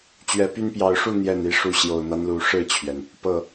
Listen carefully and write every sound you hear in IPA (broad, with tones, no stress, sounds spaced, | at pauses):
t͡ɕ ɥ ɛ˨˦ p y˦ n p j ɑ˨˦ ʊ̯ ʂ u˥˨ n̪ j ɛ˥˨ n i˦ ʂ u˦ ɕ j o˨˩ ʊ̯ n̪ a˦ n l u˨˩ ʂ ɻ̩˥˨ t͡ɕʰ ɥ ɛ˩ n | p ɤ˥˨